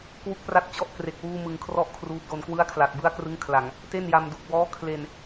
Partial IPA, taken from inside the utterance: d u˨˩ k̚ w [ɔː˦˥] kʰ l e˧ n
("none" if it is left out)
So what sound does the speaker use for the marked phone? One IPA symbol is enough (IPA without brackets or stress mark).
ɔː˦˥